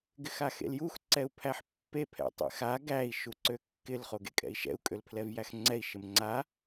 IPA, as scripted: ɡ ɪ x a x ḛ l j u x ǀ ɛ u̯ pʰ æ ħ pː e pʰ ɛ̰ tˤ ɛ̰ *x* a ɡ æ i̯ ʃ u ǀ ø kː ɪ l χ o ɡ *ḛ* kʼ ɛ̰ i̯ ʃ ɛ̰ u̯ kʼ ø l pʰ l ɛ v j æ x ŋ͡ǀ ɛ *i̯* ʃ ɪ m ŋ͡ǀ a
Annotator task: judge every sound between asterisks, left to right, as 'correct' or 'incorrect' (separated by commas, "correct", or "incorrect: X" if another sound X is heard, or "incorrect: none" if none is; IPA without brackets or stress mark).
correct, correct, correct